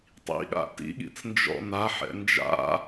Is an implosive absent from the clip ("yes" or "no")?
no